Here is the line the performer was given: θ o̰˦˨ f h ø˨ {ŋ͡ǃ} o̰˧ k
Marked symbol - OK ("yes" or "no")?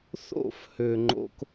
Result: yes